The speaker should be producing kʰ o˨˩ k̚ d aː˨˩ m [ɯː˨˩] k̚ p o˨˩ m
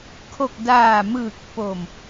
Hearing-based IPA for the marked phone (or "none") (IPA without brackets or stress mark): ɯː˨˩